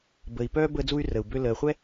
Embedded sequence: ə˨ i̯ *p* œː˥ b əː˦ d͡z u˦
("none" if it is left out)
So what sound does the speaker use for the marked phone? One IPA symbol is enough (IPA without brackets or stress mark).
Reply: p